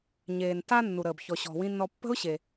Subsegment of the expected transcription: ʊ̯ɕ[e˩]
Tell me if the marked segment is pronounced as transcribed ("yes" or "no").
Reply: yes